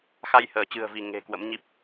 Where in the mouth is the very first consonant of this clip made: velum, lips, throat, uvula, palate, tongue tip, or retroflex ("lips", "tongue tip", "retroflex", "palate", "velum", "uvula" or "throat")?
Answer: velum